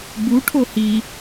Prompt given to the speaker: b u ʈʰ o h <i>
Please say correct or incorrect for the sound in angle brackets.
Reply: correct